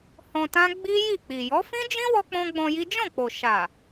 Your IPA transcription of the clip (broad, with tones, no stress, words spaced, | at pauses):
hɔ̃˧tã˦ ɡ͡bi˦ ji˦˨k͡pi˨ jɔ˨˦fĩ˦d͡ʒĩ˦ wɔ˦k͡pɔ̃˦ɡ͡bɔ̃˧ji˦ d͡ʒɔ̃˦˨k͡po˨ʃa˨